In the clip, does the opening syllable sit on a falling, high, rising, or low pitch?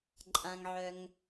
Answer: low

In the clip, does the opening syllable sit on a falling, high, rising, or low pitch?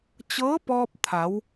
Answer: rising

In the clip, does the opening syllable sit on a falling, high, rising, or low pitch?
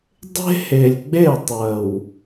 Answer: high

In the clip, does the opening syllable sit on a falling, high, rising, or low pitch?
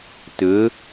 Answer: rising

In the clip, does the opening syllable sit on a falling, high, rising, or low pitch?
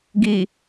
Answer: low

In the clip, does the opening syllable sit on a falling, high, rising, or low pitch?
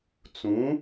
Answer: rising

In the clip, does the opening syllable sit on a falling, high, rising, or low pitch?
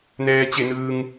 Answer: low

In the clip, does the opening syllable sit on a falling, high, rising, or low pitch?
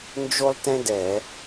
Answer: high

